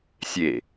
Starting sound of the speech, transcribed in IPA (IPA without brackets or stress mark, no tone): sʲ